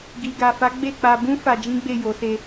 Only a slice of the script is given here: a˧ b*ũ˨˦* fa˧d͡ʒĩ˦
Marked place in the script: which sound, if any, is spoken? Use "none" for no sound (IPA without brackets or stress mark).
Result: ũ˦